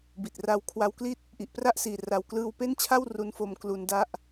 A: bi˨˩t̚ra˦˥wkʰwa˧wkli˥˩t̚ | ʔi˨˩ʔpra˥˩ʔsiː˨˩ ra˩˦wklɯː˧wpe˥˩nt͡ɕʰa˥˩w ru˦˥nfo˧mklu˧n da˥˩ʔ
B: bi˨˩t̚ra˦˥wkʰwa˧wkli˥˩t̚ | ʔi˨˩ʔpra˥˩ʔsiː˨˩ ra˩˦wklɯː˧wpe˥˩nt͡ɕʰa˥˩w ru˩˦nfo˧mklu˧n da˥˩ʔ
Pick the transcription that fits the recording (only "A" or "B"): A